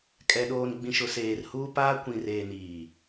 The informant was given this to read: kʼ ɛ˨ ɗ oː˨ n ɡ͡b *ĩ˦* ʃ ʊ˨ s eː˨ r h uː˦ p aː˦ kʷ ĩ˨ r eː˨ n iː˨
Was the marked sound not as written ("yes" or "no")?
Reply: yes